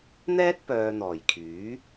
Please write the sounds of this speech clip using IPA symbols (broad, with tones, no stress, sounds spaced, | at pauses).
n̪ ɛː˥ t̚ p œː˨ n̪ ɔː˨˩ j kʰ yː˨˥